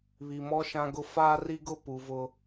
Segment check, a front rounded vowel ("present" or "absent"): absent